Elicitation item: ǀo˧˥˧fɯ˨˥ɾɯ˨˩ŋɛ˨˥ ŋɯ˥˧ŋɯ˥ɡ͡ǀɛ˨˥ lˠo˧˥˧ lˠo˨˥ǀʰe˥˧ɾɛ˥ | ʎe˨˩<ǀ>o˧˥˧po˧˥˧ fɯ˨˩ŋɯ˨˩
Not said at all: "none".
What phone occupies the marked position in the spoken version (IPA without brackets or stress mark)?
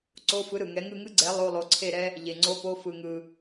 ŋ͡ǀ